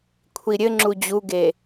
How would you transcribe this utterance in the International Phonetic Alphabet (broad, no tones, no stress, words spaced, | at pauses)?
kʷʰiɾʲɘŋ͡ǁu d͡ʑuɡe